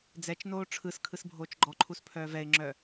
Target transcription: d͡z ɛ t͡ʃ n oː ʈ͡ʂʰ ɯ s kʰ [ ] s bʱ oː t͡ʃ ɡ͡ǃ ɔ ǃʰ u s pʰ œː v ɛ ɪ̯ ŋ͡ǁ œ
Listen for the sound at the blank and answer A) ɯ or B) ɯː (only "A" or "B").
A